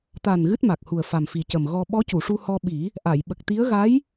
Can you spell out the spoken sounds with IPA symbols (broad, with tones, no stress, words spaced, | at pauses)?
t̪a˨˩n ɣɨ˦˥t̚ma˨˩k̚hu˨˩ə̯fa˨˩m fi˨˩cə˨˩mɣɔ˧ ɓɔ˧˥cu˨˩˨ʂu˧ hɔ˧ ɓi˨˩˦ | ʔa˨˩˨jɓə˨˩k̚t̪i˧˥ə̯ ɣa˧˥j